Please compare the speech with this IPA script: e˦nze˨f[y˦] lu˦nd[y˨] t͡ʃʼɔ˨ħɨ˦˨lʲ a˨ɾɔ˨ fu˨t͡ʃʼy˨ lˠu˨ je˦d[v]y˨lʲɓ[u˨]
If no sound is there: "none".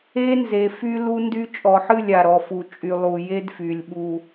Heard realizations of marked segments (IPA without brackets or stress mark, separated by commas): y˦, y˦, f, u˨